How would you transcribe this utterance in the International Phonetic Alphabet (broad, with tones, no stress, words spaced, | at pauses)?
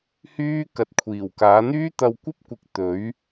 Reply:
hyː˥ kɐ˧t̚kʷʰiː˨˩wkaː˨˥ n̪yː˥t̪ɐ˧wkʷɐ˥p̚kʷɪ˨˥k̚ t̪ɵ˨˥ɥ